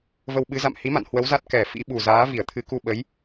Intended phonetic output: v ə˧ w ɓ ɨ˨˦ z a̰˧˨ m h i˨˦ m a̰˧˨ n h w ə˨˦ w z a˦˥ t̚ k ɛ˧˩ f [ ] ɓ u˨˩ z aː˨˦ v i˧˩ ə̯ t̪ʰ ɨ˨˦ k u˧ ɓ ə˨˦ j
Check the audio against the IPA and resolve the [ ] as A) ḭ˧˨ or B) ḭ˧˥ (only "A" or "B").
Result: B